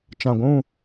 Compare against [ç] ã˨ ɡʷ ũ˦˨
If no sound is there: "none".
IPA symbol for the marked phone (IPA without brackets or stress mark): t͡ʃ